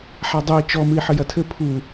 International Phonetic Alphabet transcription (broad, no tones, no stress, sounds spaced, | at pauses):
ħ a dˤ u i̯ t͡ʃ ɔ m ɨ i̯ ħ ɘ j ɐ tʰ ɘ pʰ u